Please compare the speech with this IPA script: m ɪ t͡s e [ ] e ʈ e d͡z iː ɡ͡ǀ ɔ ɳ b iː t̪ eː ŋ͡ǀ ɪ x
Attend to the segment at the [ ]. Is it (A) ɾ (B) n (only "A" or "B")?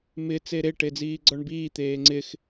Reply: A